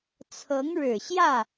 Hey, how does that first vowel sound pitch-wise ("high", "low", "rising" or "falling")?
rising